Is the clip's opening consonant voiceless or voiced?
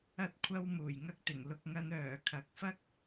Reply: voiceless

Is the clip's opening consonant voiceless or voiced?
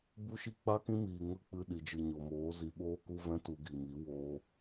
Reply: voiced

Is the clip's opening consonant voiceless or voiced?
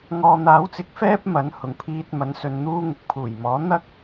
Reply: voiced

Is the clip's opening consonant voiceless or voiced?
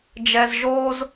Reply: voiced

